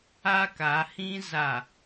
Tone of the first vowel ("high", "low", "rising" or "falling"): high